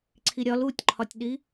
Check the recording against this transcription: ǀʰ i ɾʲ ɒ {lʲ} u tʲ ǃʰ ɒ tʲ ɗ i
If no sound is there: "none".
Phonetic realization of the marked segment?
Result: l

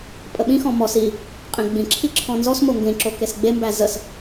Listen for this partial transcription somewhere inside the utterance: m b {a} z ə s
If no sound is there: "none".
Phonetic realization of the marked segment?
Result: æ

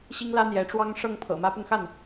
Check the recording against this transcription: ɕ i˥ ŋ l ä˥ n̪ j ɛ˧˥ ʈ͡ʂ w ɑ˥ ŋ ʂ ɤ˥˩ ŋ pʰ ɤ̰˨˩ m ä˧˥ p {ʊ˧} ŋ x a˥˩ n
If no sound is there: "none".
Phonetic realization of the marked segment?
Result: ʊ˧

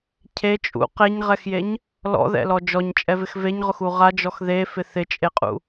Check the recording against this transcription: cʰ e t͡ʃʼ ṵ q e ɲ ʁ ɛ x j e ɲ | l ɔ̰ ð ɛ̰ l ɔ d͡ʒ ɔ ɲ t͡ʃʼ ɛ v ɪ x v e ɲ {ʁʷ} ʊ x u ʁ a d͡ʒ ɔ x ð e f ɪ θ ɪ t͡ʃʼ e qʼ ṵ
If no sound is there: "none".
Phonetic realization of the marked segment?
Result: ʁ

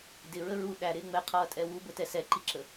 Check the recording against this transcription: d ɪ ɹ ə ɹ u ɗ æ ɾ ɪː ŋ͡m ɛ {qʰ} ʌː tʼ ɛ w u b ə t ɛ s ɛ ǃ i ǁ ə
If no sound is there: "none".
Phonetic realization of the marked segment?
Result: qʰ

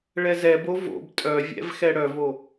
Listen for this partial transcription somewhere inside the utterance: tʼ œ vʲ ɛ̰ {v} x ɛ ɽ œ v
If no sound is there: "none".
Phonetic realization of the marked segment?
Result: v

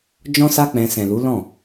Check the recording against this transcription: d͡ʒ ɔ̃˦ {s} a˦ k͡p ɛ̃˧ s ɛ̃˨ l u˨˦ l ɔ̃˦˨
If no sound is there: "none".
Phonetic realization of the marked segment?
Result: s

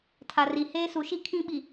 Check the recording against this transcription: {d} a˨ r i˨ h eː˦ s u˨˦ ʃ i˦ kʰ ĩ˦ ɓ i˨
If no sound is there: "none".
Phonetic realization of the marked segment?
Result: tʰ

